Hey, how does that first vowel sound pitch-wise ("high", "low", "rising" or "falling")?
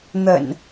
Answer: low